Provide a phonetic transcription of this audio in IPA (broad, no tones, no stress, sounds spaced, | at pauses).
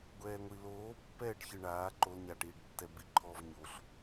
ɡʷ ɛː ŋʷ i l oː pː ɛː ɖ ç ɯ ɳ aː ǃ o l ɲ a ʈ iː ɖ tː ɛ b i ǃʰ ɔ v ɲ o ɬ